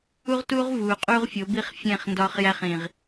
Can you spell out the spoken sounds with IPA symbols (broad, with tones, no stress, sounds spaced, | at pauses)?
u˦ ʁ t uː˦ ʁ v uː˨ qʼ uː˦ ʁ fʲ o˨˦ b i˦ χ fʲ ẽ˦˨ χ n d ɒː˦ χ j æ˦ χ ĩ˨ ʁ